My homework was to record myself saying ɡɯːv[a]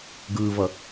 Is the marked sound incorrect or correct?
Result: incorrect